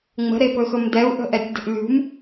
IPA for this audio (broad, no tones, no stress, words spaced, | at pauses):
ŋ͡mə̤ɾepɵxɵm dɛu̯ʔə̤ʔɛtʲdə̤ʔ lʲṳm